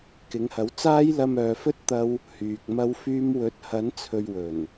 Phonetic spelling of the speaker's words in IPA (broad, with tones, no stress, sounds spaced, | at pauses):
k ɪ˨˥ ŋ h ɐ˨˥ w t͡s aː˥ j l ɐ˧ m œː˨ f ɵ˥ t̚ t̪ ɐ˥ w | h yː˨ k̚ m ɐ˥ w f yː˥ m w ɵ˨˥ t̚ h ɐ˨˥ n t͡sʰ ɵ˨ ɥ w ɵ˨˩ n